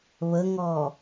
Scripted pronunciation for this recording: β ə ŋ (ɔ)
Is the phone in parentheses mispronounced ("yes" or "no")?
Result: no